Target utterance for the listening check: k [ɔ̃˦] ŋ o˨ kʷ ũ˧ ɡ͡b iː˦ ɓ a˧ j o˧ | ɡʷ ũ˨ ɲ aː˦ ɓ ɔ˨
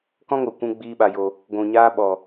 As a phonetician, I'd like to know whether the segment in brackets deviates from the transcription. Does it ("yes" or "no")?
no